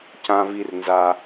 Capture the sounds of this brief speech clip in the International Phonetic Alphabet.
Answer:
cã˧vi˧rnza˧

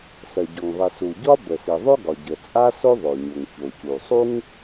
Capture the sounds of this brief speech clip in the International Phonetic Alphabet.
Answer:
sɜ˩ɟɔ˩ŋðˤi˩su˩ ɟɒ˥bə˩si˩ðˤo˥ ɡɒ˩ɟə˩ t͡sʼa˥so˥ ðˤo˩ɲo˩ŋço˩cu˩ sˤu˥ŋ

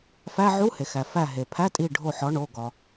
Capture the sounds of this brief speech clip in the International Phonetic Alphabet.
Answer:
fæ˧˥˧ ʕu˧˥˧he˩xæ˩ fæ˧˩ɦe˩pʰæ˧˥˧ tʼi˧˩ ɖʱo˧˩ħɒ˩˥ ɳo˩˧˩ ɡɒ˩

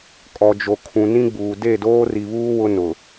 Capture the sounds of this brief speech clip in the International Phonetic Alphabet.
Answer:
kʼɔ˨d͡ʒo˨kʰũ˨ nĩ˦ɡ͡buː˨ de˦˨doː˦ri˨βuː˦ wʊ˦nʊ˨

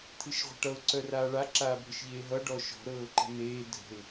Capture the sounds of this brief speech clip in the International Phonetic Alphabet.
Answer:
t̪ʰɨʃʁʷə̤ʈʌʊ̯ ǀœraːɭa ǁaːbʱɨʃʎeːɦʌ ɖɔʃɔ̤ ɾɤːǃə̤neː dʱə̤ɪ̯

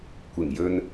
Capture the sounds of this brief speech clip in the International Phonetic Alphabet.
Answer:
kʷɪ˨˩ŋjɵ˧n

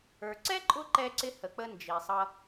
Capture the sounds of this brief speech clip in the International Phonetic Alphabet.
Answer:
ə˞˨ǀɛ˥ǃʼʊ˦ ǃɛ˦ǀɪ˦ hə˨k͡pə˦ nd͡ʒi˨sˤʌ˦

